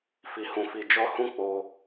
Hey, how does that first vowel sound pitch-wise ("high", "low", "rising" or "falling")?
low